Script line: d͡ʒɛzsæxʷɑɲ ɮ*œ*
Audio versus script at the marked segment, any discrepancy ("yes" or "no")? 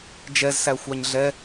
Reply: yes